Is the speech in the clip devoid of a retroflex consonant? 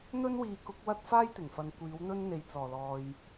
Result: yes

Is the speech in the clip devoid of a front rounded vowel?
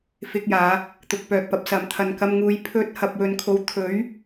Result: no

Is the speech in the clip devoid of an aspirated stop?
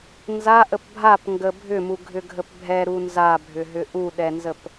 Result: yes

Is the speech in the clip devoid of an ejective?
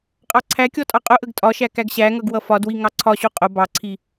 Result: no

